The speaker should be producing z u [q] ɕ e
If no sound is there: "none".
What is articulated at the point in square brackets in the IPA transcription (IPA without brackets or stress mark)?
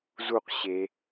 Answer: q